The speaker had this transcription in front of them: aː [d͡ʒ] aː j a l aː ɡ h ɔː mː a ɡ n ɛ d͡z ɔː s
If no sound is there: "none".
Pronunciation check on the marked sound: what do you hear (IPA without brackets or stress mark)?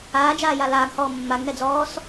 d͡ʒ